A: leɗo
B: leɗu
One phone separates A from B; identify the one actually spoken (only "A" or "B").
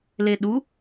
B